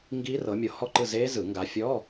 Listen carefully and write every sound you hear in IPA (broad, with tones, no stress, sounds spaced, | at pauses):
ŋ ɡ iː˦˥ r ɤ˨˦ mʲ o˨˦ h ɔ˥˨ ǃ ɯ˥˨ z eː˦˥ z ɯ˨˩˦ ŋ ɡ a˨˦ fʲ ɔ˧˥˧